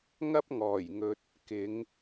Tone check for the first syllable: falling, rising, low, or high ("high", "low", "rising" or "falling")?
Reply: high